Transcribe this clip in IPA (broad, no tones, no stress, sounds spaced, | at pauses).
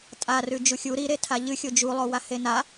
tʼ a r ʉ d͡ʒ u xʲ u ɾ i ɾ e tʰ a ʎ ɨ xʲ o d͡ʒ u lˠ o w a h e n a